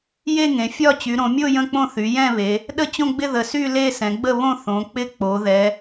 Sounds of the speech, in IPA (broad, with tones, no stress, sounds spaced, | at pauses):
j e˥˧ ŋ ẽ˩˧ fʲ ɒ˥˧ t͡ɕ y˩˧ ɾ õ˩˧ mʲ o˥˧ j ə̃˥˧ k͡p õ˥˧ θ y˩˧ j ɛ̃˥˧ β e˩˧ | ɗ ə˥˧ t͡ɕ õ˥˧ ɡ͡b ɪ˥˧ ð ə˩˧ s y˥˧ l e˥˧ s ɛ̃˩˧ ɡ͡b ə˥˧ β õ˥˧ θ õ˩˧ k͡p ɪ˥˧ k͡p o˩˧ ð ɛ˩˧